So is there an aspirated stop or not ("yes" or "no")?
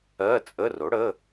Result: no